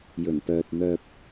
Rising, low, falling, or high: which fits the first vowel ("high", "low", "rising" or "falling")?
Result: low